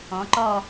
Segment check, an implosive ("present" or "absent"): absent